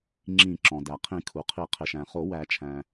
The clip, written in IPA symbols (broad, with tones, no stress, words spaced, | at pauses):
ŋ͡ǁĩ˨˩˦ ǁɔ̃˩dæ˩qʰĩ˨˩˦ kʰu˩qʰi˨˩˦ qʰɪ˩ʃæ̃˩ χo˨˩˦wæ˨˩˦t͡ʃʰæ̃˩